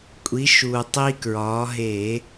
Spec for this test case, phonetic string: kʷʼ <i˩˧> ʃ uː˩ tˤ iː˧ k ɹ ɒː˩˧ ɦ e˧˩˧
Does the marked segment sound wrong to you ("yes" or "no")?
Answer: no